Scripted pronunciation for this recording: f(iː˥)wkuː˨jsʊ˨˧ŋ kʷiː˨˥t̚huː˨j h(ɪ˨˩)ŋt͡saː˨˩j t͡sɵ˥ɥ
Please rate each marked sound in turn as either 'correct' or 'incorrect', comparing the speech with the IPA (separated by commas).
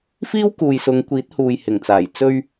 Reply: correct, correct